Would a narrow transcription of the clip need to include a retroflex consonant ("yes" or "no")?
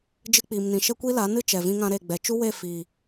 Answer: no